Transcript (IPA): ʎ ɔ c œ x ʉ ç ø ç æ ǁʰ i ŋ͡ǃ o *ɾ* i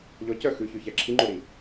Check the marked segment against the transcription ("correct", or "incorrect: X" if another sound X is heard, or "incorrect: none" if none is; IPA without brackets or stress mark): correct